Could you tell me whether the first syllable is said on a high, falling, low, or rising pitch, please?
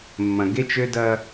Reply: low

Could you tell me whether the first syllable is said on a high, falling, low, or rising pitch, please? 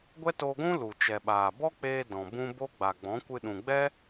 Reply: high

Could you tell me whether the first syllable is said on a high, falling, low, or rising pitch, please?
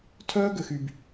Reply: high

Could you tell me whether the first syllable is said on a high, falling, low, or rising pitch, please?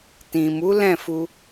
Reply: low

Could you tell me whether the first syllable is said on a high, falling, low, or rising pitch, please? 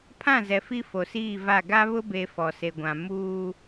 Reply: falling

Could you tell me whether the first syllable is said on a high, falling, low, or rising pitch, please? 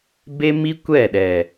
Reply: high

